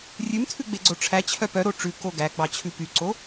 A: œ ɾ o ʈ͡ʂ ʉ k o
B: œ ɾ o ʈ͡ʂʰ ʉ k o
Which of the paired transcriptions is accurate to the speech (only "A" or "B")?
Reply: A